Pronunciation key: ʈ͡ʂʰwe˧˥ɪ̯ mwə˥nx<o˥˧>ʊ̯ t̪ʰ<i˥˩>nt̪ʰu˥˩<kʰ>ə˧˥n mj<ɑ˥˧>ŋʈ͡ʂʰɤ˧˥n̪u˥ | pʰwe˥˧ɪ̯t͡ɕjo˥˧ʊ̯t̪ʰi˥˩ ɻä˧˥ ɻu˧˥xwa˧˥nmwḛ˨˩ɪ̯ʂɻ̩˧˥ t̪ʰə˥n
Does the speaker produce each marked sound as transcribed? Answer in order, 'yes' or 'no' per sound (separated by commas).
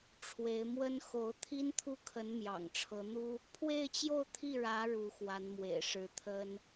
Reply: no, no, yes, no